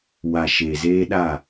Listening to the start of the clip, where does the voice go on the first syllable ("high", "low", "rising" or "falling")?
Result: low